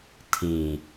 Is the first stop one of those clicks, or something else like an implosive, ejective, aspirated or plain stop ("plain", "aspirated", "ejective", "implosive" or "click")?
aspirated